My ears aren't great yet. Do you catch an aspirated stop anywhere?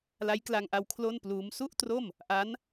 yes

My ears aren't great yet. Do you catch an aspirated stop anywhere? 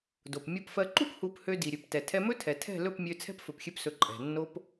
yes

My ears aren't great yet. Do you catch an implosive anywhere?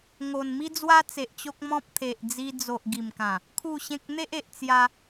no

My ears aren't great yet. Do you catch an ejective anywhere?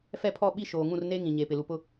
no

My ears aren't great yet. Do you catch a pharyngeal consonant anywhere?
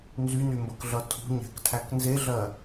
no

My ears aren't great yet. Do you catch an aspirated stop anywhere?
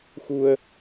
no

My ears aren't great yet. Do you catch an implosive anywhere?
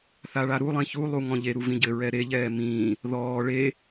no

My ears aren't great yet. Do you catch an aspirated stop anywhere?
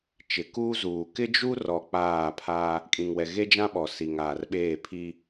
yes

